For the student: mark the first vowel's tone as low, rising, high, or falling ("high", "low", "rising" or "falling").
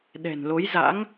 low